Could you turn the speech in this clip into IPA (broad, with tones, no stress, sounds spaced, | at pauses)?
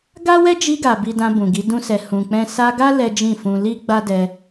ɡ a˦ w ɛ˦ d͡ʒ i˧ ɡ a˨ b i˧ d ã˧ b ũ˨ ɡ i˨˦ d ũ˦ s ɛ˧ h ũ˨ k͡p ɛ̃˧ s a˧ ɡ a˦ l ɛ˦ d͡ʒ ĩ˦˨ f ũ˧ l i˦ ɡ͡b a˦ d ɛ˧